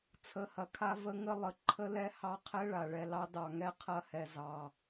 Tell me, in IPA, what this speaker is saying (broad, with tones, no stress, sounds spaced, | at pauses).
t͡sʰ ə˨˦ h ɐ˨ kʰ a˦ v ə˦ ŋ ə˦ lˠ ə˨˦ ǃʰ ə˦ l ɛ˦ h ɑ˦ qʰ ɛ˦ ɭ a˨ ɭ ɛ˨ l ɑ˦ d ɑ˨ ŋ ɛ˦ qʰ ɐ˦ h ɛ˨ z ɑ˨